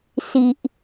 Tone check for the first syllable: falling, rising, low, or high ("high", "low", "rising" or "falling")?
low